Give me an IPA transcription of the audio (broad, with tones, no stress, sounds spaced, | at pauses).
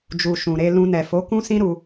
d͡ʒ u˨ ʃ ũ˨ ɾ e˧ l ũ˧ n ɛ˨ f o˨˦ k ũ˦ s ĩ˦ ɾ u˦